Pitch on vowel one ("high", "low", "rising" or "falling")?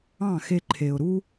falling